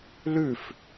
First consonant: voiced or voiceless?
voiced